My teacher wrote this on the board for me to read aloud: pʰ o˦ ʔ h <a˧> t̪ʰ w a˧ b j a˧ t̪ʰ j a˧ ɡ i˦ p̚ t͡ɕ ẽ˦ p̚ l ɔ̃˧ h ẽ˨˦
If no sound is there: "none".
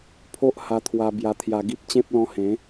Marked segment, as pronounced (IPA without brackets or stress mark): a˧